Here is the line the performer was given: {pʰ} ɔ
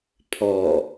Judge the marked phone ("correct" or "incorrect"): correct